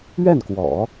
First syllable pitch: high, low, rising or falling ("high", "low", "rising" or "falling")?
falling